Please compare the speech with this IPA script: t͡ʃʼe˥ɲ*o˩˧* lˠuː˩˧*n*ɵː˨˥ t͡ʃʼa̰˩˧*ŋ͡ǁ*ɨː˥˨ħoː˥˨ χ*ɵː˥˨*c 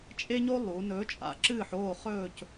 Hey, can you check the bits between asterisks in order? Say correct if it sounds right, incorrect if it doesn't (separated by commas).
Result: incorrect, correct, incorrect, correct